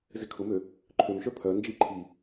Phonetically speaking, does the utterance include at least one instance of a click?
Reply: yes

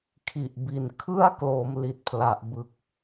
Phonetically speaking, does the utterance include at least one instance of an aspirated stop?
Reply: yes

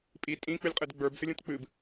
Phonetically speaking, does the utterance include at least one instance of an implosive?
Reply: no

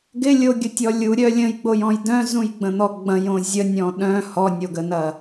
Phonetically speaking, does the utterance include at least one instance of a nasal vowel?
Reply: yes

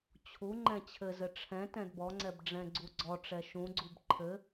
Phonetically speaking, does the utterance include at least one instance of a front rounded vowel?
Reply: no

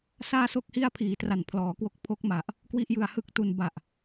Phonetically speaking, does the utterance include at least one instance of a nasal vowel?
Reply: no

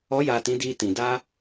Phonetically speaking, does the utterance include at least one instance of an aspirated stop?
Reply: no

